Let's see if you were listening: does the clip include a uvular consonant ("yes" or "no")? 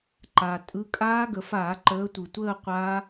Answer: yes